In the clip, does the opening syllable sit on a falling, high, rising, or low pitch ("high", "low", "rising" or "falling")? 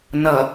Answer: low